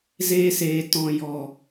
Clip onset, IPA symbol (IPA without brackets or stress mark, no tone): z